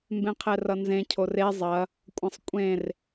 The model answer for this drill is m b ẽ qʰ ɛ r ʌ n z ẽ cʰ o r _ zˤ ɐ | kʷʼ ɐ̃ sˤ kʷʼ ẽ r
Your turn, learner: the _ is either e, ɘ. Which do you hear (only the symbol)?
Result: e